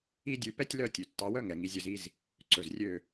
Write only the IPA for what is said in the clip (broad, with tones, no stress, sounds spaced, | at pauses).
i˦ dʲ ʉ˧ p ɛ˦ tʲ l œ˦˨ tʲ ʉ˨ tː ɑ˧ w œ˦ ŋ ɛ˨ ŋ i˧ zʲ ɵ˧ z i˦ z | ǀ ɵ˨ z rʲ ø˦˨